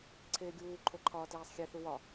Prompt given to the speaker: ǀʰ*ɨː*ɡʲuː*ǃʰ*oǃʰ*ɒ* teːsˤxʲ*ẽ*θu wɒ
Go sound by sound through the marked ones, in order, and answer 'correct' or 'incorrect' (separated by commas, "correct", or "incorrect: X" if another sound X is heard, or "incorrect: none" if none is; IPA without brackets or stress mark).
incorrect: eː, correct, incorrect: ɒː, incorrect: e